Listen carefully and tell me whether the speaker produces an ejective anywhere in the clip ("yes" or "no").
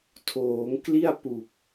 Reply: no